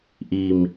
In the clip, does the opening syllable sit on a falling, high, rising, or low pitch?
low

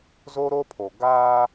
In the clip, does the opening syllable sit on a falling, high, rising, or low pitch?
high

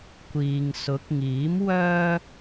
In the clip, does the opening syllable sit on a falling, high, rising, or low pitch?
low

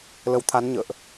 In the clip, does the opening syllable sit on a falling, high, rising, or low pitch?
rising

